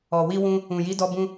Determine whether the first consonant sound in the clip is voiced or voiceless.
voiced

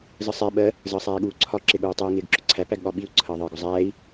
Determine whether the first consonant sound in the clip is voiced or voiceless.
voiced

